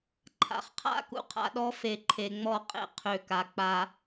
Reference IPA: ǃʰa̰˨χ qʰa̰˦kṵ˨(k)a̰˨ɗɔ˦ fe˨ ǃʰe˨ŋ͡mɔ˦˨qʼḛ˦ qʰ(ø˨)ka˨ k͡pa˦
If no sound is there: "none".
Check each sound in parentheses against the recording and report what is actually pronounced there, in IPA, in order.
qʰ, ø˨

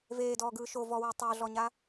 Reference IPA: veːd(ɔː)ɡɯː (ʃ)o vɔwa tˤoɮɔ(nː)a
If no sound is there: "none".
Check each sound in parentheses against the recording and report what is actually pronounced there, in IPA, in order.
ɔː, ʃ, ɲ

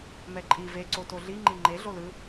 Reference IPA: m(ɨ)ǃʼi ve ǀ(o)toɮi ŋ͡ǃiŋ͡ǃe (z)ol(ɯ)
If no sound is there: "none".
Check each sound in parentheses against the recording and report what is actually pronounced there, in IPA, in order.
ɛ, o, ɮ, ɯ

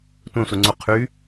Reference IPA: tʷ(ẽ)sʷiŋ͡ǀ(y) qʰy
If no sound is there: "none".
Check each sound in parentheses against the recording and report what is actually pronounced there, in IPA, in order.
ẽ, u

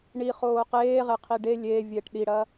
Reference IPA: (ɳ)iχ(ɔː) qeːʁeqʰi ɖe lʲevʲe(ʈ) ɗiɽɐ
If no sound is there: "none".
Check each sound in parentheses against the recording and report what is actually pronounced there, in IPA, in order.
ɳ, oː, ʈ

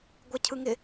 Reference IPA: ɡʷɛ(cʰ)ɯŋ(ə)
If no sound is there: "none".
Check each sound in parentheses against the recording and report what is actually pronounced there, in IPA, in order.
cʰ, ɪ

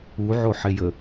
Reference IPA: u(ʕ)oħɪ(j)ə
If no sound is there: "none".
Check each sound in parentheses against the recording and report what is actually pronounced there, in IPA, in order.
ʕ, j

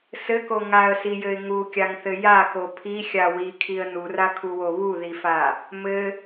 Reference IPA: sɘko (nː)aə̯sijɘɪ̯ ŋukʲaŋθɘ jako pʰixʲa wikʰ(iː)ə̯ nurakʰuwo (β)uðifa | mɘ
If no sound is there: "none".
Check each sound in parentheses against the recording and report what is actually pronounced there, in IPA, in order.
ŋ, i, β

